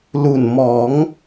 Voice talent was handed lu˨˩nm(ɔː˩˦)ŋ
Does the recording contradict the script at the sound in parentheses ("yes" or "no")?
no